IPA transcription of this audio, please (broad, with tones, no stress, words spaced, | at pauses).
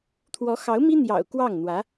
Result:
t̪ʰwɔ˧˥xɑ˧˥ʊ̯mi˥ n̪jɑ̰˨˩ʊ̯ kwɑ˥˩ŋn̪wä˧˥